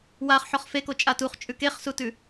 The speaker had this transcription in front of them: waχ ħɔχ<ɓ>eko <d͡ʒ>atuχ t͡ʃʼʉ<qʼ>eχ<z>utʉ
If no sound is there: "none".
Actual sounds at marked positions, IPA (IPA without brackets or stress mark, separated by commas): f, t͡ʃʼ, k, s